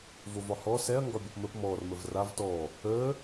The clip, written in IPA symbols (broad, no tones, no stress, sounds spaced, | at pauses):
v o v ɒ h ɔ s ɛ ɐ̯ ŋ ɡ ɒ bʲ ɔ p m ə p m ɔ r m ə v r a v t ɔ | əː